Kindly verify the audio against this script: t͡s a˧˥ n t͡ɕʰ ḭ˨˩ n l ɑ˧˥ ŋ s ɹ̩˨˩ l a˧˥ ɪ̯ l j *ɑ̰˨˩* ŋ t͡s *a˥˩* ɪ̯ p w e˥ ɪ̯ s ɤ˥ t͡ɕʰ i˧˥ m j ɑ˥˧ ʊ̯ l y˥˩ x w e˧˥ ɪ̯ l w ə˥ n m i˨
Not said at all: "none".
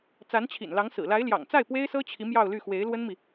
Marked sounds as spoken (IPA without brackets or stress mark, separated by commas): ɑ̰˨˩, a˥˩